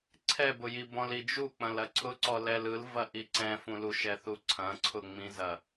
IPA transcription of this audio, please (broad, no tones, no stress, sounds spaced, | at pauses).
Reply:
ǀʰ ɛ b ʊ j i b ɔ̃ l i d͡ʒ u k͡p ɐ̃ l ɐ ǀʰ ʊ ǀ ɔ l ɛ l ɯ l v ɐ ʔ i ǀ ɛ̃ f ũ l u ʃ ɛ θ u ǀʰ ɐ̃ ǀʰ ʊ ŋ͡m ĩ z ɐ